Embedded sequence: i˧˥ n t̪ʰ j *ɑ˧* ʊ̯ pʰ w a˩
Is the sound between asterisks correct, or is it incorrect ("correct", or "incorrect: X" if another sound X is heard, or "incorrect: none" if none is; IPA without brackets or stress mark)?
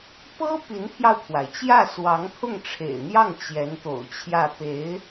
correct